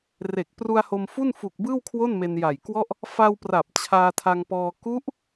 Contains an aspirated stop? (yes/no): yes